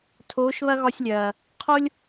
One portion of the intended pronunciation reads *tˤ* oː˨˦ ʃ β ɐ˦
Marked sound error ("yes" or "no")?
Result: yes